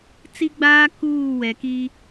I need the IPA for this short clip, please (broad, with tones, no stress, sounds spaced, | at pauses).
t͡s i˦ ɡ͡b aː˦ k uː˦˨ w ɛ˨ k i˦